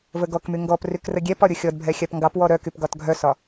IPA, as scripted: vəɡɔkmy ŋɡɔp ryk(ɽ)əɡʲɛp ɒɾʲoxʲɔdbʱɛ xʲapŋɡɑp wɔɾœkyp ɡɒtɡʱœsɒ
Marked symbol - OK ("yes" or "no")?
no